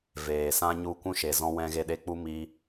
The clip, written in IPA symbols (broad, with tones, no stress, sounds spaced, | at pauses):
v eː˨ s ã˦ ɲ u˦˨ kʷ ũ˦ ʃ e˨ z ɔ̃˦ w ɛ̃˦ ɣ e˧ ɗ e˧ k͡p u˦ m i˦